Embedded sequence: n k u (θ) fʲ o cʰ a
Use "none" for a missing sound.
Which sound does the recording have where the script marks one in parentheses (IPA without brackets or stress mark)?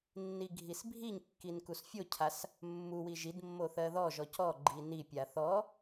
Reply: s